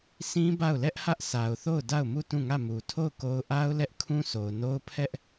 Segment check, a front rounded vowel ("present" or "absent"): absent